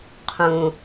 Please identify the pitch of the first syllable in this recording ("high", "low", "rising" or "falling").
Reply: low